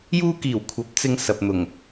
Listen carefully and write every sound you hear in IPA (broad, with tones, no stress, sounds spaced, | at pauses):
j uː˧ k iː˨˩ w kʷʰ ɐ˨˥ p̚ t͡s ɪ˧ ŋ s ɐ˨ p̚ n̪ ʊ˨˩ ŋ